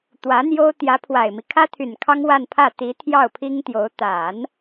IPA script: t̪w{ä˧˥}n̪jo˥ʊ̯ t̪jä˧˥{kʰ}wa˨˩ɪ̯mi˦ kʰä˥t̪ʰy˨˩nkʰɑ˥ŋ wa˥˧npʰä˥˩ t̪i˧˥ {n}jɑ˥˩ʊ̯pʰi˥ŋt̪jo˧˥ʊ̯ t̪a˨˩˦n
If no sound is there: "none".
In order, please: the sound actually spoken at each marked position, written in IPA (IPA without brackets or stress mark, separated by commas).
ä˧˥, pʰ, t̪ʰ